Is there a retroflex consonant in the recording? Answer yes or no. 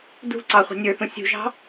no